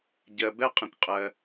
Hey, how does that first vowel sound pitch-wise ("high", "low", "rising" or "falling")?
low